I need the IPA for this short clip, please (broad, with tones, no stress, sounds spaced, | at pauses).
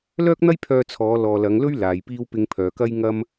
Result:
l œː˥ k̚ n̪ ɐ˥ j pʰ œː˧ t͡sʰ ɔː˨˧ l ɔː˨ l ɐ˨˧ ŋ l ɵ˥ ɥ l aː˨ j p iː˥ w p ɪ˧ ŋ pʰ œː˨ k ɐ˥ j ŋ ɐ˥ m